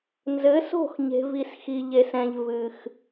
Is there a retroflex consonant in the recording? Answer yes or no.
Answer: no